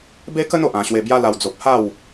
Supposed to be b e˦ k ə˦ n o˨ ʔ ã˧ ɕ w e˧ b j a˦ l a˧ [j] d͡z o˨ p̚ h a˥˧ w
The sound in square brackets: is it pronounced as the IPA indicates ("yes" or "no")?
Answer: no